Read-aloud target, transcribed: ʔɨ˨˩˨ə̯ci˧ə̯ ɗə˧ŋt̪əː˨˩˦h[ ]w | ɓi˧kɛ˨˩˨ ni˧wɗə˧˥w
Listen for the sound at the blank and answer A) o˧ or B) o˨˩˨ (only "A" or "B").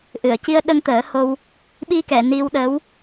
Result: A